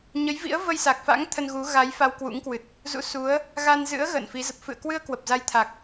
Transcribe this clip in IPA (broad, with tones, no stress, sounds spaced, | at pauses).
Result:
ɲ ə˨˦ j v ḭ˧˥ ə̯ v ə˧ j s a˨˩ k̚ f a̰˧˥ ŋ t̪ʰ ə˧ n ɣ u˨˦ ɣ a˨˦ j f a˧ w k w ṵ˧˥ ŋ k w ɨ˨˩ t̚ | z ṵ˧˥ s u˨˦ ə̯ | ɣ a˧ n z ɨ̰˧˥ ə̯ ɣ ə̰ː˧˨ n f i˨˦ z ə˨˩ p̚ f ɨ̰˧˨ ə̯ k w ɨ˧ ə̯ k w ə˨˩ p̚ z a˧ j t̪ʰ a˨˩ k̚